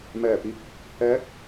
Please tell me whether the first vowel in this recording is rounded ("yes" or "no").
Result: no